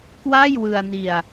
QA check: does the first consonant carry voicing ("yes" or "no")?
no